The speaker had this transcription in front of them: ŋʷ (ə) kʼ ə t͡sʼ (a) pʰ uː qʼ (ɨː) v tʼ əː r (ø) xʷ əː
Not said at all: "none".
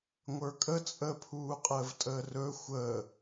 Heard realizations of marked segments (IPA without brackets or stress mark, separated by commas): ə˞, ə, əː, ɵ